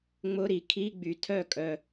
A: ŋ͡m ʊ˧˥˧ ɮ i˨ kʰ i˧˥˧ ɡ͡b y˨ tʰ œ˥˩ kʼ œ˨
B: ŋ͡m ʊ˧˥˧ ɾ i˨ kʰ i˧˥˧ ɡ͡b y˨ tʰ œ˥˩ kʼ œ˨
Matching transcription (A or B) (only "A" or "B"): B